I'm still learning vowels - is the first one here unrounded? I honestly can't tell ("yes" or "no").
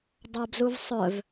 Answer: yes